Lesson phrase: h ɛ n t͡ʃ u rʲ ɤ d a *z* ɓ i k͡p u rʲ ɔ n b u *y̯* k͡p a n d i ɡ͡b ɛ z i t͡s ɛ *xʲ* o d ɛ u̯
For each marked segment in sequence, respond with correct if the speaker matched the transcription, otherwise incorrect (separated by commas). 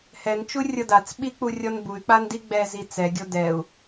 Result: incorrect, correct, incorrect